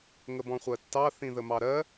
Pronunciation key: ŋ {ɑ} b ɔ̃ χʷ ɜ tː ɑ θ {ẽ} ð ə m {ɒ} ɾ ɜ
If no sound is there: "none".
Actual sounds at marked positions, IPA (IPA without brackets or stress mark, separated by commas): ə, ĩ, ɑ